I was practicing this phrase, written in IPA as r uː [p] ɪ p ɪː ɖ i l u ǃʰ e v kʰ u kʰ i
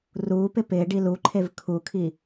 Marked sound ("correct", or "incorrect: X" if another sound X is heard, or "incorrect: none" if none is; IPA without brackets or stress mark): correct